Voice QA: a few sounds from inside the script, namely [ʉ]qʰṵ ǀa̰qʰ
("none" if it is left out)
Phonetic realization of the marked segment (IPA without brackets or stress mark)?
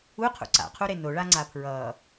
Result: u